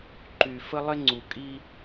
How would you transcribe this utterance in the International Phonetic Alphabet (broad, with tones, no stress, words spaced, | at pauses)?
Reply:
ǃy˨fə˦lˠɪ˦ ŋ͡ǀu˨ kʼi˦